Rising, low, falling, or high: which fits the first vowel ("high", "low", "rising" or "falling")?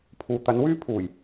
low